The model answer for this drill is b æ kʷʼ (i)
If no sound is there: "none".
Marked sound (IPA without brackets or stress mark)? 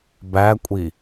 i